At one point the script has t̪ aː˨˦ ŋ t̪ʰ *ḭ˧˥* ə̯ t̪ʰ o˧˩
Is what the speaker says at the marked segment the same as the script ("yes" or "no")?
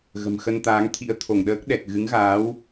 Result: yes